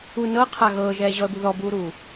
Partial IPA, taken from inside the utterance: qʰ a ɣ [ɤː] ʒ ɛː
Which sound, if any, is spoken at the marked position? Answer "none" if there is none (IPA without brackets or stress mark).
ɤː